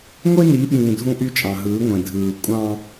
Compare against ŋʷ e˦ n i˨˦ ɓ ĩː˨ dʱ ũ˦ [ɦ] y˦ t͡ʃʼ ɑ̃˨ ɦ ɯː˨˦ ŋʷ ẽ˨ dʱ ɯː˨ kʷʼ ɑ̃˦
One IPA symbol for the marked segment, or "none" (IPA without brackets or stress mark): ʔ